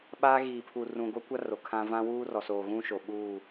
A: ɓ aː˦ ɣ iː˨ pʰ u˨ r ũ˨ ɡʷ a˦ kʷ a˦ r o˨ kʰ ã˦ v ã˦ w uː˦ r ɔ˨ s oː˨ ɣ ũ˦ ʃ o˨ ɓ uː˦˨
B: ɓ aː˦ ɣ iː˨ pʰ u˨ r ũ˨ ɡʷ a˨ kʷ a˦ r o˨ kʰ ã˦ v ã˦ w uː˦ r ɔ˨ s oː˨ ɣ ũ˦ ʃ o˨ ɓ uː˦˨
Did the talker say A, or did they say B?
A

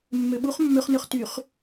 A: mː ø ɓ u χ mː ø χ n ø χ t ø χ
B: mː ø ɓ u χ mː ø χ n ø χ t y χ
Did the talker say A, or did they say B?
B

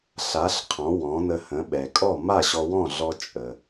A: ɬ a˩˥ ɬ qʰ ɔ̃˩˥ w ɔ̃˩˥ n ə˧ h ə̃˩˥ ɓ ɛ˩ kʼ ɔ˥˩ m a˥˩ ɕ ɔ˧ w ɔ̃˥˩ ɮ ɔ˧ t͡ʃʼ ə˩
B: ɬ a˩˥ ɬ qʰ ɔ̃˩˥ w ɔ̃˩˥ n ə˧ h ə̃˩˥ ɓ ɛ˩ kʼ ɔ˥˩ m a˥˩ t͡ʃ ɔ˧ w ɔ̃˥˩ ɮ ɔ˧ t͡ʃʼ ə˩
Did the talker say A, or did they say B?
A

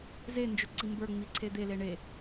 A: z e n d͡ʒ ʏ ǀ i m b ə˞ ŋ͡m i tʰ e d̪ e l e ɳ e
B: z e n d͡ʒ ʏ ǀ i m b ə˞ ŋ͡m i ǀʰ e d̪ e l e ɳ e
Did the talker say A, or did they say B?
B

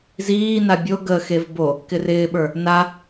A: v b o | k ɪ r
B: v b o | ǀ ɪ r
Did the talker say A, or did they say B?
A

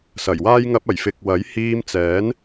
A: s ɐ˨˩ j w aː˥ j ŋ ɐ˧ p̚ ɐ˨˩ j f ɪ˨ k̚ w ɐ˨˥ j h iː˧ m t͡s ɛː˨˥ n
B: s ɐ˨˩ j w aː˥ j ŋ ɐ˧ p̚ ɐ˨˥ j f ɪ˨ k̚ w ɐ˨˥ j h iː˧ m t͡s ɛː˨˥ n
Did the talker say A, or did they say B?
A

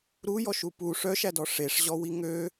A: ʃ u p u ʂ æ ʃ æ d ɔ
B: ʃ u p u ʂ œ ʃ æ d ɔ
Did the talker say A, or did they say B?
B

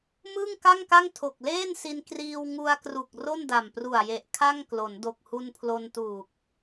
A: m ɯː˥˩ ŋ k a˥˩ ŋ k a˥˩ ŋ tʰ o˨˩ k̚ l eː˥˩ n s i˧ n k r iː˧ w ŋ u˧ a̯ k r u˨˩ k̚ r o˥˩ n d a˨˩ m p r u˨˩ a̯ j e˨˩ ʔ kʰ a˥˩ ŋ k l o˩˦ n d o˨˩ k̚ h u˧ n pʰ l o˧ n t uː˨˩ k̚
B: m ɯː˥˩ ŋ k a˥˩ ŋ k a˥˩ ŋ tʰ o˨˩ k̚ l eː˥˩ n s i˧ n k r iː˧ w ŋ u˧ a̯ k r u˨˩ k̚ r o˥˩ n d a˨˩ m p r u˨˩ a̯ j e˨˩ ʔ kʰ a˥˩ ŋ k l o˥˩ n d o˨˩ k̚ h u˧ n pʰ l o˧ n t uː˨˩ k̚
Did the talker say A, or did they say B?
A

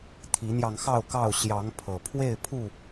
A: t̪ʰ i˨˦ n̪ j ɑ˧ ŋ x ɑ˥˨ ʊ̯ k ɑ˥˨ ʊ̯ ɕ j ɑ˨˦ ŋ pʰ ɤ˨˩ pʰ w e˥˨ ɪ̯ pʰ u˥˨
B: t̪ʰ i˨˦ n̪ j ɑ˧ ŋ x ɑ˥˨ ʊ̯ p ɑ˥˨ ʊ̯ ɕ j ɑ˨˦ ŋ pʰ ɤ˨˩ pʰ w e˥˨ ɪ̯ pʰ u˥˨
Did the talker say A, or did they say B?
A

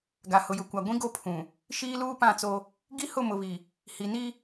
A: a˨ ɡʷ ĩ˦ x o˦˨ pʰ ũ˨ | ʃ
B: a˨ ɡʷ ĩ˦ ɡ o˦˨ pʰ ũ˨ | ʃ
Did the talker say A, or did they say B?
B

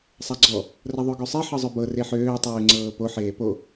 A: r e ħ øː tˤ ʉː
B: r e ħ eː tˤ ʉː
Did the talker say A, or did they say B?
A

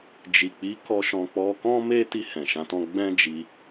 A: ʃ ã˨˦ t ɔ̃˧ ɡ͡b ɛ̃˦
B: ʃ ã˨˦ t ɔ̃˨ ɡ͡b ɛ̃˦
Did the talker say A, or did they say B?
A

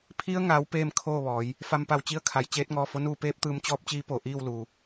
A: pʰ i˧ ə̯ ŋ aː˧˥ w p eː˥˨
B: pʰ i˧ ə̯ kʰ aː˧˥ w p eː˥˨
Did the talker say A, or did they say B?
A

